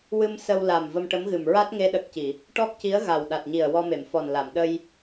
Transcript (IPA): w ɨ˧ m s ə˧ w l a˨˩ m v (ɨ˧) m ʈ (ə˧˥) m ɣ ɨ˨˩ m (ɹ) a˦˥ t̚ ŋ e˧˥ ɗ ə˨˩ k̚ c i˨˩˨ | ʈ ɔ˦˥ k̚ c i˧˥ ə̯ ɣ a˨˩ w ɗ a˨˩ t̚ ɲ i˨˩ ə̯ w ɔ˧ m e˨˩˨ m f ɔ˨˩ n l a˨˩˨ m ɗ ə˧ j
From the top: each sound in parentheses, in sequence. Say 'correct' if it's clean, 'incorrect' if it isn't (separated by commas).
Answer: incorrect, correct, correct